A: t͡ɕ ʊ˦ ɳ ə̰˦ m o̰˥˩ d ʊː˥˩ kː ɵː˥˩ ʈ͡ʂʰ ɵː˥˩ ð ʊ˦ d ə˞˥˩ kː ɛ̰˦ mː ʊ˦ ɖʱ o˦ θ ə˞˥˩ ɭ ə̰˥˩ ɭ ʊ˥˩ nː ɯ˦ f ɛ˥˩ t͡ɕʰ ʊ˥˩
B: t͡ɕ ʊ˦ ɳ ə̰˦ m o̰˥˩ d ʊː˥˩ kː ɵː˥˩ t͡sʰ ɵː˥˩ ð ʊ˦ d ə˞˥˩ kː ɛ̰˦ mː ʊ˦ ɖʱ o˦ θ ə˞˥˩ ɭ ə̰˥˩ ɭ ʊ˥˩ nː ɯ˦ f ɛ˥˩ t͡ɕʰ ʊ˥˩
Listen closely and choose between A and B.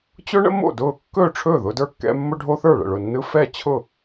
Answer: A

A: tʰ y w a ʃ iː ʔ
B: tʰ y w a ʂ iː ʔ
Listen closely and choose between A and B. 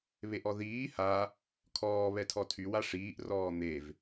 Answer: B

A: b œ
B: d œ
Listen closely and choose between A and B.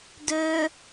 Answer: B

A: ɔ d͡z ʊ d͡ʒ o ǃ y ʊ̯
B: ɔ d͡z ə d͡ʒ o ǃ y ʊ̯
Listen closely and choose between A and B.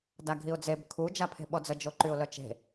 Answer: B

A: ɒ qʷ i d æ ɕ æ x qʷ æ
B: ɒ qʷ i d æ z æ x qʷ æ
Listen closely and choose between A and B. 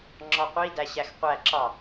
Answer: A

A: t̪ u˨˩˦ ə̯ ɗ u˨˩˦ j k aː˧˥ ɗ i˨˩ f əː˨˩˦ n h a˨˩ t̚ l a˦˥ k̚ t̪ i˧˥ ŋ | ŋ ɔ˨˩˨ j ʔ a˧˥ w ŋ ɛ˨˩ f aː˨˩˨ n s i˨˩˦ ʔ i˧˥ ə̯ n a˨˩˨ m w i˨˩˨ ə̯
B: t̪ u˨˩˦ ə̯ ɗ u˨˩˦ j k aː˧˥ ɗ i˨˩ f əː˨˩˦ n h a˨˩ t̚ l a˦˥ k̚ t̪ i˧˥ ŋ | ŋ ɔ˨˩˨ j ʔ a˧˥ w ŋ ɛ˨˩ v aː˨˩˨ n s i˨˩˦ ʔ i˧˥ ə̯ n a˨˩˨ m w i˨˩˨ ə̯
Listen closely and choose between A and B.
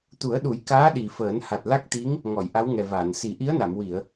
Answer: B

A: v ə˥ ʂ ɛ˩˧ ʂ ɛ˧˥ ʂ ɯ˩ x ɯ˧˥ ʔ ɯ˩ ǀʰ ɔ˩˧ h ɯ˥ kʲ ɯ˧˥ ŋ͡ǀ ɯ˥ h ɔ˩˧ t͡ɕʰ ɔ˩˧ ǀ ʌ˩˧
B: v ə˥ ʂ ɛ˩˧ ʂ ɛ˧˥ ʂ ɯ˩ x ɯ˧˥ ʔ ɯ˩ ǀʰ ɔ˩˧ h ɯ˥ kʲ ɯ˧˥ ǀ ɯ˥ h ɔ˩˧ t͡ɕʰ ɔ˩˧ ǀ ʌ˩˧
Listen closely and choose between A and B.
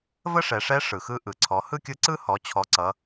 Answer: B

